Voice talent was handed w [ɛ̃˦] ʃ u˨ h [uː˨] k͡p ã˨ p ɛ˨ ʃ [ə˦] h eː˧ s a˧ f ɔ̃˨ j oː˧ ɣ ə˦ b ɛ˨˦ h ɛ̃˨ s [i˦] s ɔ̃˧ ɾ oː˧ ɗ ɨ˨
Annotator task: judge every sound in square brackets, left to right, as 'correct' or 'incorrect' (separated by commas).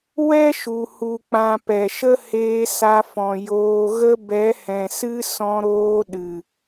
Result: incorrect, incorrect, correct, incorrect